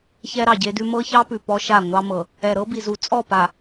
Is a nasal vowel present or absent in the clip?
absent